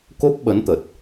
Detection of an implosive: present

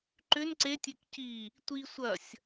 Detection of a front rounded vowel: present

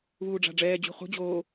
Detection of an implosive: absent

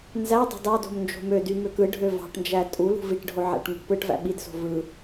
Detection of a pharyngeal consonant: present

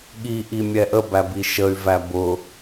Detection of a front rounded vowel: present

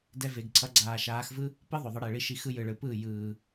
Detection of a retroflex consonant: present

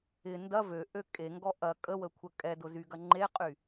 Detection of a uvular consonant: present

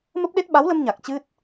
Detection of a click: absent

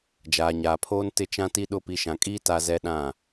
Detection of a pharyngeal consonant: absent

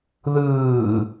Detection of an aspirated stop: absent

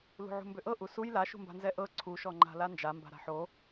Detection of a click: present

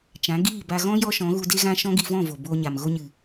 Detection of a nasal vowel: present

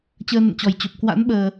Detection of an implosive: present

